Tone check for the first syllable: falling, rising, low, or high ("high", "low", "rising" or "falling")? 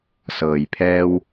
low